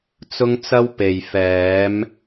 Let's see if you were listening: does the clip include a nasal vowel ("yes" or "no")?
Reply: no